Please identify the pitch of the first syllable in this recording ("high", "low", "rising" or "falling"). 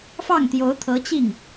falling